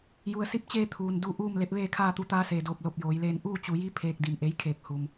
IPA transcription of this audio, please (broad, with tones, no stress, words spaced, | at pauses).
ju˩ə̯si˧˥p̚t͡ɕeː˧ t̪ʰuː˩n du˧˩ ʔuː˥˨mle˧˥p̚ʋeː˥˨ kʰaː˥˨t̪u˧˥ t̪aː˧˥seː˩doː˧˩p̚ lo˧˩p̚joː˩˧jleː˧n ʔuː˥˨t͡ɕu˩˧ji˧˥ pʰeː˧k̚di˧˩mʔe˧˥j kʰeː˧˩k̚ hu˩m